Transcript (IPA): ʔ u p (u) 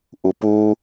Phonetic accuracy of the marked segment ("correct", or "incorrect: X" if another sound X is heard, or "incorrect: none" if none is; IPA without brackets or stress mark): correct